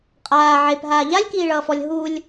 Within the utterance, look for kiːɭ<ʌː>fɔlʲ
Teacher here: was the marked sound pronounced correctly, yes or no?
yes